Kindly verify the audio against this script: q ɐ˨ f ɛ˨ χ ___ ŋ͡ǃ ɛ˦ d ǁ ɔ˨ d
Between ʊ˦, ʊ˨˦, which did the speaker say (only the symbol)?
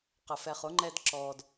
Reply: ʊ˨˦